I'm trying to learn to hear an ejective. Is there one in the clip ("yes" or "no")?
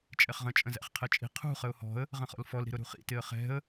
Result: yes